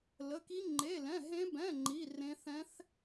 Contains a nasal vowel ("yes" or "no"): yes